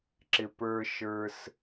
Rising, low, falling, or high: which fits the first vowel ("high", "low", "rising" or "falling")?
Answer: high